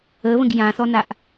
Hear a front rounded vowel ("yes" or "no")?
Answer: no